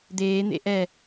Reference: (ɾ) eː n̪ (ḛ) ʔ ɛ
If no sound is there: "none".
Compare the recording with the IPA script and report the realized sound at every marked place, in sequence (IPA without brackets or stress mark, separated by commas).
d̪, ḛ